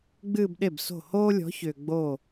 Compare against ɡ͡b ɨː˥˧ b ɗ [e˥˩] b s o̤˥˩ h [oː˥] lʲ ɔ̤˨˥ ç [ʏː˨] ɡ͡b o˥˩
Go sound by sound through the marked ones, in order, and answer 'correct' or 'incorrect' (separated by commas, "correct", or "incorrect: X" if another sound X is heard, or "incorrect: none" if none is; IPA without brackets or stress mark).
correct, correct, correct